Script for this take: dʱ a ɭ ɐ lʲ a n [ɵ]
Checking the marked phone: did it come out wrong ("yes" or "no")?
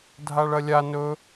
no